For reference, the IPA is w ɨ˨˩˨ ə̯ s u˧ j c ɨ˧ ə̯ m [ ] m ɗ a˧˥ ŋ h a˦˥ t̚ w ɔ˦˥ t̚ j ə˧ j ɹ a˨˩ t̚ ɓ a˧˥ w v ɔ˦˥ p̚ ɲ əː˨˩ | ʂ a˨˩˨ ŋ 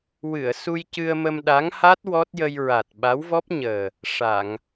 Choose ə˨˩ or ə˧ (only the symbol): ə˧